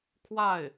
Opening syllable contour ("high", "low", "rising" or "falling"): falling